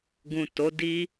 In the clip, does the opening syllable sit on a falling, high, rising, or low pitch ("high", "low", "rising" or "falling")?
low